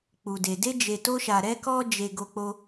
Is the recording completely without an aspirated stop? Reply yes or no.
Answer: yes